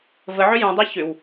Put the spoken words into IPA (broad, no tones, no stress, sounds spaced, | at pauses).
v ə ʕ ʏ j ũ dˤ e ç ʏ w